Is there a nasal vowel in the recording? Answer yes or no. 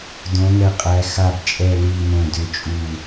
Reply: yes